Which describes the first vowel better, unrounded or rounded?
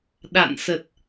unrounded